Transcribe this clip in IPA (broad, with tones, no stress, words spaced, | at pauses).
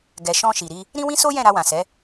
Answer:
ɡɛ˨ʃɔ̃˧ ʃi˨ɾi˧ | ɾĩ˦wĩ˦so˦jɛ̃˦˨ ɾa˧wã˨sɛ˨˦